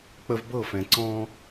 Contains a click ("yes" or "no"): yes